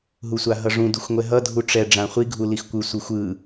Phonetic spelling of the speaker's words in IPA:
ɦ u sʷ a ɦ ʌ ʐ ũ d u xʷ ŋʷ ɛ ɦ ʌ dʱ u ʈ͡ʂ ɛ ɖ͡ʐ ã χʷ i ɡʱ u l i x kʷ ɯ sʷ ɯ xʷ ɯ

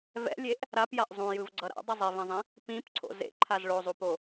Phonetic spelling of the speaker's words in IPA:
v ɛ̰ lʲ e ʔ | ɾ a p j a ʔ zˤ ũ j ɯ v ɡ͡ǀ ʌ ɾ a̰ dˤ ʌ zˤ i v ẽ zˤ ĩ | p ĩ p ǀʰ o̰ z ḛ ǃʰ a z ɭ o zˤ u p o

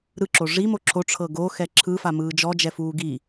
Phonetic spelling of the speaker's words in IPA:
ɾ ɯ ǁ o ʐ i m o ǁʰ o ʈ͡ʂʰ ɤ ɡ o x ɛ ǁʰ ɯ f a m ɯː d͡ʒ ɔ d͡ʒ ɛ f uː ɡ i

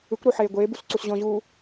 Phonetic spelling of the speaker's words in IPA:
ɯ kʷ ɾ o ħ eː ɡʷ eː b u s ǀ u s ʑ ɔ̃ ʑ uː

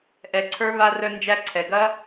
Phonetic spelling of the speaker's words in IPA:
ʔ ɛ˨ ǀʰ ə˞˦ β a˧ r œ˧ n d͡ʒ æ˦ ǀʰ ɛ˨ ɡ ɐ˦

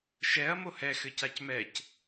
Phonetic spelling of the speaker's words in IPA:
ʃ ɛ ɐ̯ m o h ɛ x ɘ c a c m ɛ c

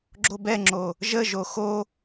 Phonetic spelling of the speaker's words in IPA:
ɡ͡ǁ o b ɛ ŋ͡ǁ o | ʒ ə ʒ o x o

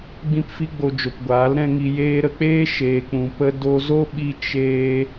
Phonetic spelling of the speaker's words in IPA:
ɡ͡b ĩ˧ p f i˧ ɡ͡b o˨ d͡ʒ o˨ p ɡʷ aː˨˦ l ɾ ɛ̃˦ ŋ i˧ j eː˧ ɾ ə˧ k͡p eː˦ ʃ eː˧ k͡p ũ˧ p ə˧ d o˧ z o˦ ɓ i˧ t͡ʃ eː˧

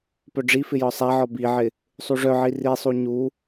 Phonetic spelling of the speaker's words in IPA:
p œ ɖ͡ʐ i f ɪ j ɒ sˤ a ʕ ɒ b i ʕ ɪ | sˤ u ʐ œ ʕ i r i sˤ u ɲ u

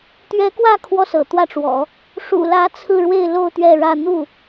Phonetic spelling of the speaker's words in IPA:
t̪ ɥ ɛ˧˥ k w ä˥˩ kʰ w ɔ˥ s ɤ̰˨˩ t̪ w ä˥˩ ʈ͡ʂ w ɔ̰˨˩˦ | ʂ ṵ˨˩ l ä˧˥ t͡sʰ ɹ̩˥˧ ɻ w e˥˧ ɪ̯ l o˥˧ ʊ̯ t̪ ɥ ɛ˥˧ ɻ ä˥˧ n̪ u˥˩

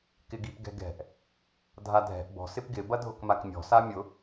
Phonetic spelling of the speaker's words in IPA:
k ɪ ɡ i p ɡ ɛ̤ ɡ ɛ̤ ʔ | dʱ a dʱ ɛ̤ ʔ b ɔ̤ s ɪ p ɡ ɪ b ɐ dʱ ʊ k m a k mʲ ɔ̤ s a mʲ ʊ

